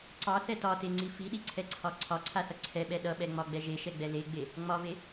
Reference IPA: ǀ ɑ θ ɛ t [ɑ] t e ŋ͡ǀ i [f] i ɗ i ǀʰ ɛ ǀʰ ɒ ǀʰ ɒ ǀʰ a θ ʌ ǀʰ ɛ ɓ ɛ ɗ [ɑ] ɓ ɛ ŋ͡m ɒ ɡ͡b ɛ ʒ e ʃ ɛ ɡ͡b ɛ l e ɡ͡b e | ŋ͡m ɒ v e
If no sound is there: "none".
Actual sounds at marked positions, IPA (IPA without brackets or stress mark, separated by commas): ɒ, f, ʌ